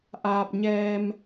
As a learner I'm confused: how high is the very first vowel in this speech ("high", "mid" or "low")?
low